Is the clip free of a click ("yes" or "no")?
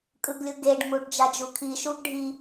yes